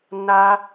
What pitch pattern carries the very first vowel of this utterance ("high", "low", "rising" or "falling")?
high